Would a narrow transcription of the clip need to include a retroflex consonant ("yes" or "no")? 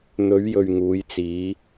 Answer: no